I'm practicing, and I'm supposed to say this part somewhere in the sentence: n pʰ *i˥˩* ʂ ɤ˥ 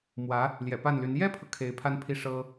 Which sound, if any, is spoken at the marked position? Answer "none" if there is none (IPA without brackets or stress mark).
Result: i˥˩